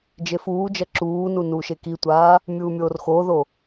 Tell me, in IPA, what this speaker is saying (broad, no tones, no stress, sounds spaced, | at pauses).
d͡ʒ e f uː d͡ʒ ɐ ǁ uː n u n uː ʃ e k i tʷ aː | mʲ uː mʲ oː r x oː ð o